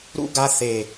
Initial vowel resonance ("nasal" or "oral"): oral